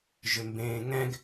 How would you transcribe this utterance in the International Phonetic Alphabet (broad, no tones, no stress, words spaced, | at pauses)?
ʒʏmbẽːŋɛ̃ɡ